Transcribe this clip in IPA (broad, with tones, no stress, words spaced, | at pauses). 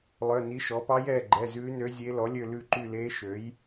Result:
lˠœ˩˧˩ni˩˥ ʃɔ˩˥ pɑ˧˥jɛː˩˧˩ɡ͡ǃɛ˩˧˩ zʉː˧˥nø˧˥zʲe˧˥ lɔ˩˥lʲø˦˨ lʉ˦˨ǃy˦˨leː˧˥ ʃø˩˥j